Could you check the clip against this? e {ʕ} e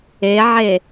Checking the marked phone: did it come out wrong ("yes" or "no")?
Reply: no